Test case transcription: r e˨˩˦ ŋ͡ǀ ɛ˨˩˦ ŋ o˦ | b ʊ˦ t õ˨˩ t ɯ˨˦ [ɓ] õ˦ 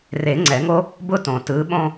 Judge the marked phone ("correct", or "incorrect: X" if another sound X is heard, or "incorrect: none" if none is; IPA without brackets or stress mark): correct